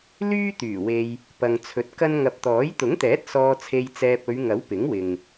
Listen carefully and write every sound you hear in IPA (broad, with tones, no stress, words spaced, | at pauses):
lyː˥t̪yː˨˩ we˧j | pɐ˨ŋt͡sʰɵ˨t̚kɐ˥n ŋɐ˨p̚t̪ɔː˨˥j t̪ʊ˨˥ŋt̪ɛː˨˥t̚ sɔː˧t͡sʰe˧jt͡sɛː˧p̚ ɵ˨˧ɥŋɐ˨˥w pɪ˨˥ŋwɪ˨ŋ